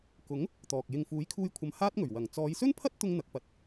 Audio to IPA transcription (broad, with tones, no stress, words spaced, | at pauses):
kʊ˨˥ŋ | t̪ɔː˨k̚ jɪ˨ŋfuː˨˥j kʰuː˥jkʷʰɐ˧m haː˥t̚ŋɵ˨˩ɥ wɐ˨˩ŋ t͡sɔː˨˧jsɵ˥npʰɐ˥t̚t̪ʊ˧ŋ n̪ɐ˨˥k̚pɐ˨˥t̚